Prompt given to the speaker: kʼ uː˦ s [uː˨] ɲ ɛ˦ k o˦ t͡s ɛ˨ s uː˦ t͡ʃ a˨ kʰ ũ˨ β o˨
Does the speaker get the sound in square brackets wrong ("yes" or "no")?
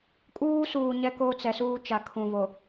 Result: no